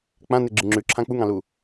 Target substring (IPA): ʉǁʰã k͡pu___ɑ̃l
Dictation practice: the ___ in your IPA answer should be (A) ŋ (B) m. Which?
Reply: A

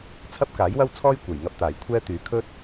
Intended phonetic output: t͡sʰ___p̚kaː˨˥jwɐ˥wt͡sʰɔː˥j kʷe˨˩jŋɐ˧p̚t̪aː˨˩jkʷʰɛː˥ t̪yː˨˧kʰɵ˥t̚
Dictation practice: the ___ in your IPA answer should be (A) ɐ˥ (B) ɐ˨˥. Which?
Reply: A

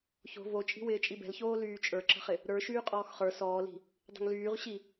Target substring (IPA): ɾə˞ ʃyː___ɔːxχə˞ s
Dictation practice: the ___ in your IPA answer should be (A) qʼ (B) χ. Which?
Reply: A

